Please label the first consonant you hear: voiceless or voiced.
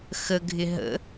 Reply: voiceless